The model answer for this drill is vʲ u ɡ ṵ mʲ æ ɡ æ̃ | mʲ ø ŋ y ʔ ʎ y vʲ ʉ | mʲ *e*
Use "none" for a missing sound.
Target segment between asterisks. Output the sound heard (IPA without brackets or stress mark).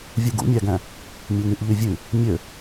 ø